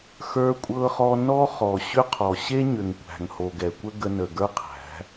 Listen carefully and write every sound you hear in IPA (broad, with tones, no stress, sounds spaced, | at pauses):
x ə˞˧ kʷʼ ɤ˧ χ ɔ˧ n ɔ˦ χ ɔ˨ ɕ ʏ˦ qʰ ɔ˨ ɕ e˦ ɲ ʏ˨ ŋ kʷ æ̤˨ ŋ h o˨ ɡ ɛ˨ kʷ ə˦ ɡ ə˧ n ə˨ ɡ ə˞˦ qʰ æ̤˨˦